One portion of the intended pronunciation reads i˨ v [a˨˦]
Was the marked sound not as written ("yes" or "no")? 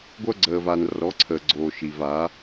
no